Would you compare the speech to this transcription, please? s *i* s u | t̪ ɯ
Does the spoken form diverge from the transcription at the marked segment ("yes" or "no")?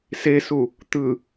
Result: yes